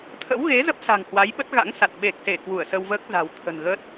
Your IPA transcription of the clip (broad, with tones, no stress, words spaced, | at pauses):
t̪ʰə̰˧˥wɣe˨˦ zə˦˥p̚sa̤˨˩ŋhwa˨˦j ɓə˦˥t̚ɣa̰˧˥ŋsa˨˩t̚ ɓe˨˩k̚se˧˩ kwu˧˩ə̯sə˧wvəː˦˥k̚ za̤˨˩wt̪ʰə̤˨˩nɣə˦˥t̚